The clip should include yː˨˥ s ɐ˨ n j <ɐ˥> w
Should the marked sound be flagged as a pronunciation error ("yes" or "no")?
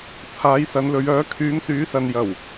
yes